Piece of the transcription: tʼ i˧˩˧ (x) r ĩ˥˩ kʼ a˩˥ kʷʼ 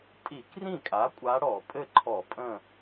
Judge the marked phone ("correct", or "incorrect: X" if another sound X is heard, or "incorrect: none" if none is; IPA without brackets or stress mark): incorrect: k